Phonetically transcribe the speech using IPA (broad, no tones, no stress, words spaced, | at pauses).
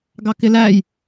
ɡɑkɪlæj